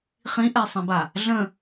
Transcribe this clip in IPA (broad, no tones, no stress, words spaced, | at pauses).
χĩʔɛsˤĩba | ɮə̃